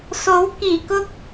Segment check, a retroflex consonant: absent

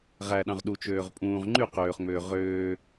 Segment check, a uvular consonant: present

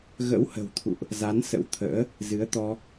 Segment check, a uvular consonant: absent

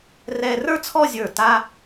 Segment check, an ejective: absent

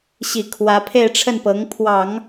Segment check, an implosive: absent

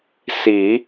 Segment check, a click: absent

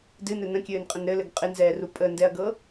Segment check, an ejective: present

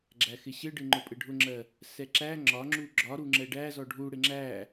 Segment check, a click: present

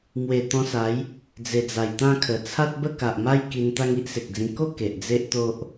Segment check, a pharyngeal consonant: absent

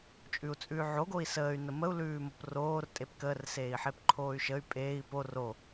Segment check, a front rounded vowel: present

